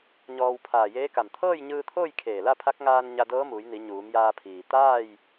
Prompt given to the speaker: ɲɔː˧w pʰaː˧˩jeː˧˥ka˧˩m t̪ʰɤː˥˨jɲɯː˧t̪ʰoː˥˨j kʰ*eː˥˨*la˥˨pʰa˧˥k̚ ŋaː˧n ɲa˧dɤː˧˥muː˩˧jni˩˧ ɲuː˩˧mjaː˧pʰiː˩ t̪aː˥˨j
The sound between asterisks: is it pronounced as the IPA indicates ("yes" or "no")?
no